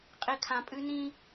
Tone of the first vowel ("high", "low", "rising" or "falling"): low